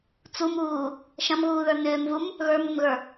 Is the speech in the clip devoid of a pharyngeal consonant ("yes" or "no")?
yes